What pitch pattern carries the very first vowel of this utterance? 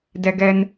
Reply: high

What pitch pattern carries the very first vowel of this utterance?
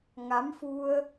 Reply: rising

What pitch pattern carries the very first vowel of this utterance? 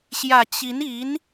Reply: low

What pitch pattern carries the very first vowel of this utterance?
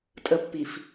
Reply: high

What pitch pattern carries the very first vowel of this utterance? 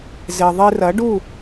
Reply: low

